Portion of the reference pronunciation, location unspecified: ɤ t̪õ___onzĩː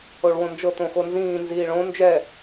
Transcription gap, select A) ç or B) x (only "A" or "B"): B